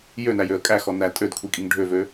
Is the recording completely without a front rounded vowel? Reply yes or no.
no